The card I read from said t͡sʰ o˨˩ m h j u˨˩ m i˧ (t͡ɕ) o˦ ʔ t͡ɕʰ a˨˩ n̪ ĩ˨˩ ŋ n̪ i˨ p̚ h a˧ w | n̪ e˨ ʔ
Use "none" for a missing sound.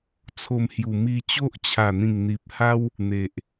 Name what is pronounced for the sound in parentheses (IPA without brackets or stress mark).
t͡ɕ